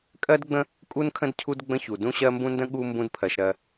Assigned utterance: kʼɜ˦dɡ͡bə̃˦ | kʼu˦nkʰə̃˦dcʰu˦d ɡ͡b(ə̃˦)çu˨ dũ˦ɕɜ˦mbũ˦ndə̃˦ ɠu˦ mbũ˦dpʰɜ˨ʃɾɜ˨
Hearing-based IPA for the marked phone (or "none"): ə̃˦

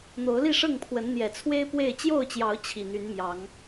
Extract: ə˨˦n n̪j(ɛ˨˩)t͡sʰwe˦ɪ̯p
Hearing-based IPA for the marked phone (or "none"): ɛ˨˩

